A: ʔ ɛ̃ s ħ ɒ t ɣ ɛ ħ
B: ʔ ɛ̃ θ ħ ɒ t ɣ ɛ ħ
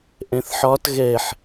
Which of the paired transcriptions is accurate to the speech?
B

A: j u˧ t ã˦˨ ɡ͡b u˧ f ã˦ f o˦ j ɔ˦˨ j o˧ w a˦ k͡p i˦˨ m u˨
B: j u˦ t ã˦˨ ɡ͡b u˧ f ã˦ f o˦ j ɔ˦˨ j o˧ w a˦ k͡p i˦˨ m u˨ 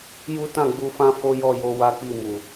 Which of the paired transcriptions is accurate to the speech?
B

